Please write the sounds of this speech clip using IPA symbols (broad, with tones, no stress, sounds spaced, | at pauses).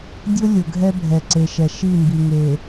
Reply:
dʲ ʊ˦ lʲ ʊ˨ ɡʱ ɛ˦ bʱ ɛ˨ ǀ e˨ ʃ ɛ˨ ʃ i˦˨ m b i˨ ŋ e˨